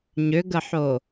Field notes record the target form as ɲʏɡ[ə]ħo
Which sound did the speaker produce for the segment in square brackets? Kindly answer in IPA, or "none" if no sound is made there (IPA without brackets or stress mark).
ə